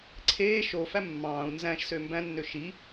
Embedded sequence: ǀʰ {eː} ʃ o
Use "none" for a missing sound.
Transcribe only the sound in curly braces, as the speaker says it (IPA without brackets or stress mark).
eː